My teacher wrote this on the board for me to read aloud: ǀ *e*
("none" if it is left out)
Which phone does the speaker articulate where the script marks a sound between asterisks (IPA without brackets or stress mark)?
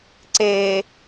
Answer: e